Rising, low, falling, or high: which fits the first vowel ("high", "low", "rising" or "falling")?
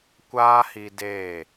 high